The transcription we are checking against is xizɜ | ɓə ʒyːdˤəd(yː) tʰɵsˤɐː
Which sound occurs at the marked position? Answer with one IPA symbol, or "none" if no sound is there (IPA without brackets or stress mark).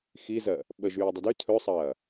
y